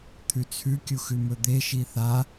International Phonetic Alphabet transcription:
t̪ʰ ʉ t͡sʰ ʉ kʲ u x ʉ m ɵ d̪ e ʃ i θ a

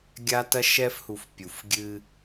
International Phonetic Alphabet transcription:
ɡʲ a˦ t ɐ˦ ʃ ɛ˦ f h u˨ f pʲ u˨ f ɡʲ ɨ˦

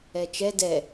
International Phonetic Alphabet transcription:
ɛ t͡ʃ ɛ d ɛ

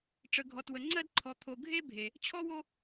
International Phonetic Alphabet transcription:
ʈ͡ʂ ə˨ ɡʱ ɔ˨ t w ə˨ ŋ͡ǀ ɜ˦ d ǃʰ ɔ˨ t̪ʰ o˨ ɡʱ e˦ bʱ e˨ | t͡ɕʰ ɔ˦ w o˦

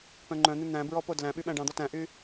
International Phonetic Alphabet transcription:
p œ̃ ŋ͡ǃ œ̃ n̪ ʉ n̪ æ̃ b ɹ ɔ p o d l æ̃ ɓ y ɓ æ̃ ɖ ɑ̃ d̪ ɔ t æ̃ ʔ y

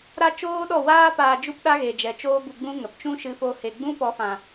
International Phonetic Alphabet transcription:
ɾ a˦ t͡ʃ oː˦ ɗ ɔ˦˨ w aː˦ p aː˧ d͡ʒ u˦ p ɗ a˦ ɣ e˨ d͡ʒ ɛ˨ t͡ʃ oː˦ b u˧ ɡ͡b ũ˦ ŋ ə˨ p t͡ʃ ũ˦ ʃ ɨ˧ f o˧ h e˨ ɡ͡b ũ˦ p ɔ˨˦ f ã˨

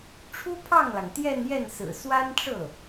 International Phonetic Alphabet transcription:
ʈ͡ʂʰ u˥ pʰ ɑ˥˩ ŋ l ɑ˩ ŋ t̪ j ɛ˥˧ n j ɛ˥˩ n s ɹ̩˨˩ s w a˥ n ʈ͡ʂ ɤ˥˩

